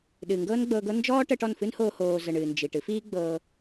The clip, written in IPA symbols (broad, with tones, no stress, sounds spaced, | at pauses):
ɗ ɨː˨ ŋ ɡ ɤː˦ n ɡ͡b ɤː˧ ɡ ɤ˦ n d͡ʒ ɔː˦ ʈ əː˧ ʈ ɔ˦˨ n f ɨ˦ n h oː˧ h oː˧ z ə˨ ɳ ɨː˨ n d͡ʒ i˨ ʈ ɨ˦ f iː˦ ɡ͡b ɤː˧